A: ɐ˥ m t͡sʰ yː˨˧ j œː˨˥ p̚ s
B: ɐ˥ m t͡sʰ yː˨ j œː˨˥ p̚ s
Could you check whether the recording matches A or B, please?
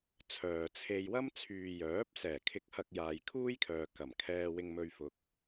B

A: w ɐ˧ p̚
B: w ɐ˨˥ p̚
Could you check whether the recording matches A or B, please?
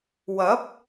B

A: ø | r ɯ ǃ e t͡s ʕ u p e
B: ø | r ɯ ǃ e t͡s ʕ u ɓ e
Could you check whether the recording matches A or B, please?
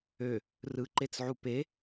A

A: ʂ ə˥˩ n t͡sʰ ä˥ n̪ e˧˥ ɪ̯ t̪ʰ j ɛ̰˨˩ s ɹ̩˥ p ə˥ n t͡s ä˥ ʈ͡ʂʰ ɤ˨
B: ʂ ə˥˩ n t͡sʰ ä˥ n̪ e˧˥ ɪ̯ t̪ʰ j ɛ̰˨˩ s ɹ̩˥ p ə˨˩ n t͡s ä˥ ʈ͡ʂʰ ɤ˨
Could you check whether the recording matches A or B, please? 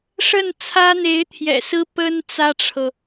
A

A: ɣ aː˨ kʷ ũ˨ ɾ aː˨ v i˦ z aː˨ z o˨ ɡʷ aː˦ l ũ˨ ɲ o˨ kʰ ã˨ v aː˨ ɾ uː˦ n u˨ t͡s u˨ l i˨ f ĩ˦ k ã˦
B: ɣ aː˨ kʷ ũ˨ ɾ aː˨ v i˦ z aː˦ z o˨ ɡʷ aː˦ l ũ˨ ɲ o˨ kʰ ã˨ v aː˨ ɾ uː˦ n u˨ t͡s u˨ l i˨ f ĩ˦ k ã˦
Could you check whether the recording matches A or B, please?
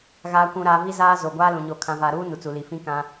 B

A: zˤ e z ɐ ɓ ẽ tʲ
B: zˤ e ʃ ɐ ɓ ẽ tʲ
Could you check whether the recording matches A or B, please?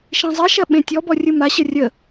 B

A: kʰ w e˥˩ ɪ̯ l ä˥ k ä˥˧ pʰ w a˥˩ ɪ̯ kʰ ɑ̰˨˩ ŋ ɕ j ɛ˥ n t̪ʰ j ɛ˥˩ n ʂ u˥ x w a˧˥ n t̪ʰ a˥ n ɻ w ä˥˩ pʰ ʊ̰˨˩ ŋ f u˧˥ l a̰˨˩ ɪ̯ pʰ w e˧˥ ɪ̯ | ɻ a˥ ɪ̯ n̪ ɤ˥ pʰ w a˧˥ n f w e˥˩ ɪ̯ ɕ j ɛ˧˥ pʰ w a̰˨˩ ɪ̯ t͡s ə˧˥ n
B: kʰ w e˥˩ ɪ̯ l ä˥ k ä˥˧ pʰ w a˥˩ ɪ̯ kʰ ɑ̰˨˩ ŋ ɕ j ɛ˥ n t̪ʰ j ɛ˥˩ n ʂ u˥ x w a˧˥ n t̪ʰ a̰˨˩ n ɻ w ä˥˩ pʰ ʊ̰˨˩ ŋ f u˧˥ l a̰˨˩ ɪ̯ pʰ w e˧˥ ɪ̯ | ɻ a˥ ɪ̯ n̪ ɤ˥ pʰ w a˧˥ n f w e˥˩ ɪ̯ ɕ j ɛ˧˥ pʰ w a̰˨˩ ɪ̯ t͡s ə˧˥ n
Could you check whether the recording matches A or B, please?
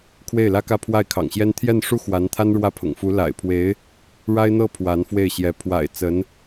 A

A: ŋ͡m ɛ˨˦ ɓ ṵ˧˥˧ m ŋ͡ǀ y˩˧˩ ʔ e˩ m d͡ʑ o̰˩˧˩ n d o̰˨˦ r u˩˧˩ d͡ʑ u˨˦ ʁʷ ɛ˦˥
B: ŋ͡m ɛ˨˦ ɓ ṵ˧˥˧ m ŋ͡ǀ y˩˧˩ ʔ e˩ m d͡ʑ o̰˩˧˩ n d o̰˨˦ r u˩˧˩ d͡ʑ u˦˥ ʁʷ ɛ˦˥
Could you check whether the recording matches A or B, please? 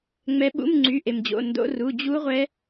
B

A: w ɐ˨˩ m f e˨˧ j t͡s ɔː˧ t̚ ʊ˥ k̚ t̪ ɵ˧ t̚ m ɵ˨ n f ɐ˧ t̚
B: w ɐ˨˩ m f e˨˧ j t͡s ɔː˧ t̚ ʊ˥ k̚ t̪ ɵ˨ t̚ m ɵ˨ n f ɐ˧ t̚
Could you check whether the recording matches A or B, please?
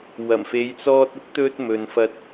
A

